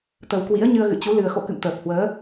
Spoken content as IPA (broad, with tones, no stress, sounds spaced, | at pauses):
t̪ ə˨˩ w k w ḭ˧˥ ə̯ ɲ ɨ˧ ə̯ ɣ ɨ̰˧˨ t͡ɕ u˨˦ l ɨ˨˩ ə̯ x o̰˧˨ k ɨ̰˧˨ m t̪ əː˨˩ p̚ h w əː˨˦